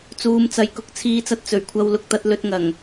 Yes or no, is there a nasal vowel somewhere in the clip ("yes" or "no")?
no